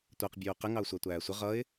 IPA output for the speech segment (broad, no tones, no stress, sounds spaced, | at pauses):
tʷ æ q bʲ uː q ɪ ŋ ɑ ʊ̯ sʷ æ tʷ æː sʷ ɪ ʁ ʌ ɪ̯